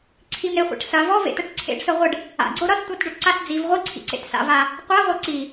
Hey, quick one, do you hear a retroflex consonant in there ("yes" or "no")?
yes